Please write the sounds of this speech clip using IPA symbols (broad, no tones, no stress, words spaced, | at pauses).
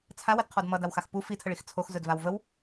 t͡sʰawədqʰɔd mʌdawxax pu fitʰəɭix t͡sʰoxzɵdvaw vəw